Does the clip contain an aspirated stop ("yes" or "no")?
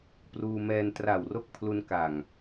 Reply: yes